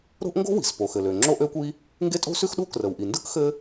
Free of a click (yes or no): no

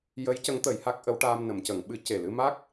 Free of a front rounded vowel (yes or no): yes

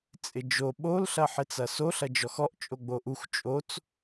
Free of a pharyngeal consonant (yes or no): no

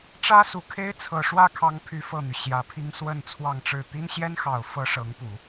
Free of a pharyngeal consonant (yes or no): yes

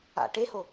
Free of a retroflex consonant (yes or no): no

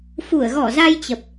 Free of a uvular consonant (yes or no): yes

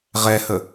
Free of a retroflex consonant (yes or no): yes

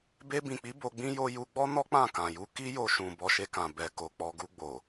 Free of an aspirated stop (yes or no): yes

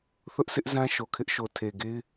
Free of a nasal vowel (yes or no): no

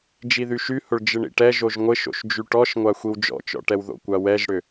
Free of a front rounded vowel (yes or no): no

